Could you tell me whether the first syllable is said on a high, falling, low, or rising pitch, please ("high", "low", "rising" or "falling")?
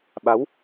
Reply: rising